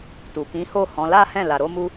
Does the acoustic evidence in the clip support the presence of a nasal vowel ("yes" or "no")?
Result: yes